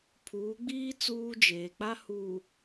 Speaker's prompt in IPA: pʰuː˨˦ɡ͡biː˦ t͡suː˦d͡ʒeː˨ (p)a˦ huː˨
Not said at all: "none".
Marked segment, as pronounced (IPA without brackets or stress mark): k͡p